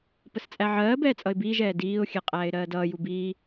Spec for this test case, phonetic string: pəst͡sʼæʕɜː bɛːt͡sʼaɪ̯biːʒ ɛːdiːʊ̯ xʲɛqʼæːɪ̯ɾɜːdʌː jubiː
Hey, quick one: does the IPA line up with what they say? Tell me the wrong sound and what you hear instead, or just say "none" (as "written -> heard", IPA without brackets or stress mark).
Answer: a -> ʌ